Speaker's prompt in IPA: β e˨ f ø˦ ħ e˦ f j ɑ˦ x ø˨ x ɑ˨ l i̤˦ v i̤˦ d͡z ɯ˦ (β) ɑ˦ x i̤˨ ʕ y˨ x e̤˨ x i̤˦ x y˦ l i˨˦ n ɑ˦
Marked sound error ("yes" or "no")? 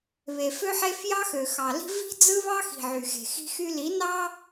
no